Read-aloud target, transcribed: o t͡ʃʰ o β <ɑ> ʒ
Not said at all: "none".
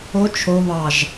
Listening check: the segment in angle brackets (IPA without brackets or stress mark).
ɑ